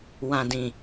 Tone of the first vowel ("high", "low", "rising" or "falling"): low